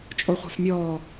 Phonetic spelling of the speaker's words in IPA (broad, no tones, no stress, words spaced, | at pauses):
t͡ʃʼoχʷa̤fmʲɔː